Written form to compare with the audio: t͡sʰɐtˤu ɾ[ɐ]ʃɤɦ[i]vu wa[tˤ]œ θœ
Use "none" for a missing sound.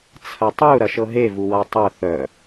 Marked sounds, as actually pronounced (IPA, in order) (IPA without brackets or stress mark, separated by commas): ɐ, e, tˤ